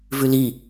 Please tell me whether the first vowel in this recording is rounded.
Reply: yes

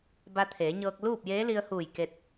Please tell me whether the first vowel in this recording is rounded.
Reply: no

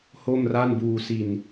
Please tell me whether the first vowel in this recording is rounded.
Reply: yes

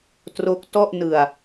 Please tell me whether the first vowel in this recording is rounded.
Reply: yes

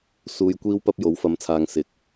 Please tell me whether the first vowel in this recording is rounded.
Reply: yes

